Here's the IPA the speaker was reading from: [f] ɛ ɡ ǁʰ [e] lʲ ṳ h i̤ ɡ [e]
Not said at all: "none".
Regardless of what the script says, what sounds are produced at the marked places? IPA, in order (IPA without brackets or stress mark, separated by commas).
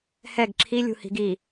h, i, i